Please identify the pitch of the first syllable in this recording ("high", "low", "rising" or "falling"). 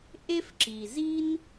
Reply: high